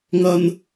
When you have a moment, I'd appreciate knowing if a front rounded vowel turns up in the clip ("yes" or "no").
no